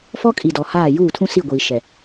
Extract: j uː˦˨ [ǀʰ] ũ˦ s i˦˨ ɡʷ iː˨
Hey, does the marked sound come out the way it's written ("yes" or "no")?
no